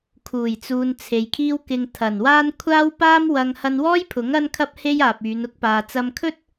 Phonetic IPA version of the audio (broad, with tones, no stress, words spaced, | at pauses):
kʰuː˨˩jt͡suː˨n t͡sʰe˨jkʰiː˥wkɪ˧ŋ t̪ʰɐ˨˩nwaː˥n kʷʰaː˥wpaː˥mwɐ˧ŋ hɐ˧nwɔː˥jpʰʊ˨˥ŋ ɐ˥nkʰɐ˥p̚ he˥jaː˨p̚yː˨˧nʊ˥k̚ paː˨t͡sɐ˧mkʰɵ˥t̚